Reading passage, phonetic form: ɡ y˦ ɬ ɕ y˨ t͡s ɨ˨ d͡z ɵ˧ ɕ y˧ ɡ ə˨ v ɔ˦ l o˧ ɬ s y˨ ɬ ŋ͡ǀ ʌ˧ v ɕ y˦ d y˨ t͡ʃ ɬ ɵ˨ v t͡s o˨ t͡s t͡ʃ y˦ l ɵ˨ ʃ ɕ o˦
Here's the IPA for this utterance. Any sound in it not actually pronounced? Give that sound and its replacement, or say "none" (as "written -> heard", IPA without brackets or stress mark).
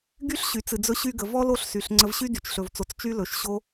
ʌ˧ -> ə˧